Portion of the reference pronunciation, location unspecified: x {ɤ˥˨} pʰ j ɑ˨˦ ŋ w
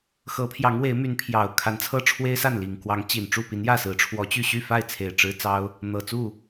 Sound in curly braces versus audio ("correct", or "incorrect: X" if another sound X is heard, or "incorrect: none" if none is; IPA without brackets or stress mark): incorrect: ɤ˨˦